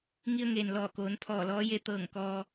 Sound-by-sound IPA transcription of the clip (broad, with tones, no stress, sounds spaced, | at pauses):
ŋ i˧ ə̯ ŋ eː˩ n l ɔː˧˩ k oː˩˧ n pʰ ɔː˧˩ l ɔː˧˥ j e˧˥ t̪ ɤː˧˩ ŋ k ɔː˧